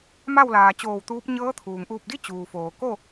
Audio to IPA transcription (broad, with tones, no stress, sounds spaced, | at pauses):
m a˥˨ w l aː˩ t͡ɕ oː˧˩ w t̪ uː˧˥ p̚ ɲ ɤː˧˥ t̪ʰ uː˩ ŋ ʔ uː˧˩ p̚ d i˥˨ t͡ɕ uː˩ f oː˩ k o˥˨